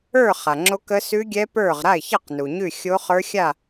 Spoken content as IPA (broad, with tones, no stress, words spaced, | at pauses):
ə˞˥˨ χa˩ŋ͡ǁo˦˥kə˦˥ sʉ˦˥ɡʲɛ˦˥ pə˞˥˨ʁ ɾa˥˨ɪ̯çɑ˥˨q nu˩ɲʉ˥˨ xʲo˦˥χə˞˦˥ xʲa˥˨